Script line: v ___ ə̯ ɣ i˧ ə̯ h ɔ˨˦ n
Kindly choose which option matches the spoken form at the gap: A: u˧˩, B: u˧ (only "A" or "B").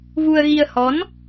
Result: B